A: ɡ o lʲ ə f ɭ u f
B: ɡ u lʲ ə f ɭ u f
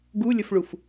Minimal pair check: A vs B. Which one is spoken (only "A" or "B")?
B